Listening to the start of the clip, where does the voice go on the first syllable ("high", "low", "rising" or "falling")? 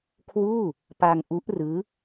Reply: falling